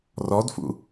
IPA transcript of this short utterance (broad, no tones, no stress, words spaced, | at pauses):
rɔdfṵ